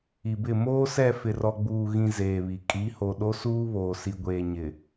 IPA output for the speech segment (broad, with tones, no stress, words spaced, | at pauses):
i˨bɪ˦˨ moː˦sɛ˦˨ fɪ˨rɔ˨ɡ͡buː˨ɣĩ˨ zeː˨βi˨ kʼi˨˦ho˨ ɗo˦suː˦βoː˨ si˨ɡʷeː˨ɲɪ˨